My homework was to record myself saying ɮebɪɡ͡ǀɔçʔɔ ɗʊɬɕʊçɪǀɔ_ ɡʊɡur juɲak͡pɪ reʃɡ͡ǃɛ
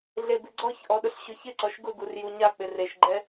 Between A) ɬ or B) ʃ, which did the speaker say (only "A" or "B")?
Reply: B